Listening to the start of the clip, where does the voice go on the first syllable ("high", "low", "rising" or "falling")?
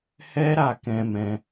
high